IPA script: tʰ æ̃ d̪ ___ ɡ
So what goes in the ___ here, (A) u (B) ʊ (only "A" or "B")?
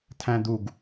A